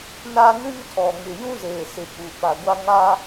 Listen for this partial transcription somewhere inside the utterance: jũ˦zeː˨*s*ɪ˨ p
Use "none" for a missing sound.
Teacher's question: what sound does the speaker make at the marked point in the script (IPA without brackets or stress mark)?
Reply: s